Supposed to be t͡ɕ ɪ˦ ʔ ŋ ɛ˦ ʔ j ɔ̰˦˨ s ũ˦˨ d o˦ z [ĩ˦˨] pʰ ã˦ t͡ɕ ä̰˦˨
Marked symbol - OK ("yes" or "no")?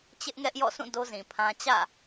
no